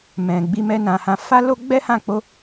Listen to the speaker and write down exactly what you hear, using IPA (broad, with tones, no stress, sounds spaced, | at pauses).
m ɛ̃˨ ɡ͡b i˧ m ɛ˧ n ã˨ h ã˧ f a˦ l o˦ ɡ͡b ɛ˦ h ã˦˨ k͡p o˧